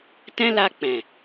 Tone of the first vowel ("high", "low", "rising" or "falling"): high